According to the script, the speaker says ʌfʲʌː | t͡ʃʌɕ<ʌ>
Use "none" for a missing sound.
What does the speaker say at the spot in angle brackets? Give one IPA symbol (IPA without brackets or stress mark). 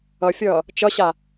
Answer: a